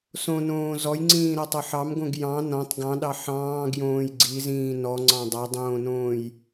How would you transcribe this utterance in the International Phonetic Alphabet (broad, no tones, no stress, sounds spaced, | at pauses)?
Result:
s õ n õː z ɔ j ŋ͡ǀ ĩː ɾ a tˤ ɤ ħ ɑ m ɡ õ ɡ j ɑ̃ n ɔ̃ tˤ ɡ ɑ̃ ɗ ɑ ħ ɑ̃ː ɡ j õː j ɡ͡ǀ i z ĩː n ɔ ŋ͡ǀ ɑ̃ dˤ a dˤ õː n õː j